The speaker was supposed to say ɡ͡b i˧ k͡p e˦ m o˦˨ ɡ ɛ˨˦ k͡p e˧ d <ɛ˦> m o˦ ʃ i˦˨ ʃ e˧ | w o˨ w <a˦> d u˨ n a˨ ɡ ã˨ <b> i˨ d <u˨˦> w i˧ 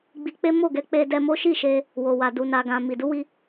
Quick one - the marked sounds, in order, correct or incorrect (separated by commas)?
incorrect, incorrect, incorrect, correct